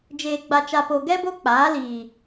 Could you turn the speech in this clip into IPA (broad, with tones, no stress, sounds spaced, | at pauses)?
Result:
d͡ʒ eː˨ ɡ͡b a˨ t͡ʃ a˨ p o˨ ɡ ɛ˦ b o˦ k͡p aː˨˦ l iː˨